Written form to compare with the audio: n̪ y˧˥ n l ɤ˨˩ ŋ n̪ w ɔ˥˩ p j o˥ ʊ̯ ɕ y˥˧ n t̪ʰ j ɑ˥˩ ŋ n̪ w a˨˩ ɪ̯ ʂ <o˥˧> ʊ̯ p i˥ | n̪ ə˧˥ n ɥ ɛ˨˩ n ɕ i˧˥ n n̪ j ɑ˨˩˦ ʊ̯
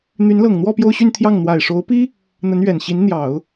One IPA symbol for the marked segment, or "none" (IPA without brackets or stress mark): o˧˥